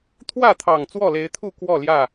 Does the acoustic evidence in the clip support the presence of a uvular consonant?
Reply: no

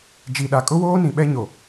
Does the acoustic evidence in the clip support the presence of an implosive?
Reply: yes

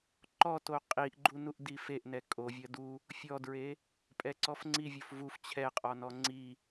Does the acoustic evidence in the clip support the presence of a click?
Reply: yes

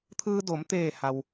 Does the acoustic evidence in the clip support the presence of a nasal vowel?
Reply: no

